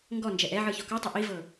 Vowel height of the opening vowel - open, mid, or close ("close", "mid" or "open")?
mid